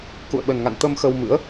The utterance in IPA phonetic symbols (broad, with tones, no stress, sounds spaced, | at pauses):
k ṵ˧˨ ə̯ ɓ ə˨˩ n ŋ a̰˧˨ n t̪ ə˧ m x ə˧ w m ɨ̰˧˥ ə̯